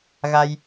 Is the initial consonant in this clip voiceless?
no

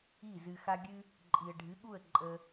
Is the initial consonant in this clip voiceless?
no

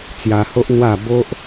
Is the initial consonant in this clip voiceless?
yes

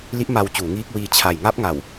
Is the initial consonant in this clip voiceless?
no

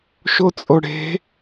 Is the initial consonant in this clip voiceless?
yes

